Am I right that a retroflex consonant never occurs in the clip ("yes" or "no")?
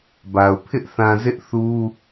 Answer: yes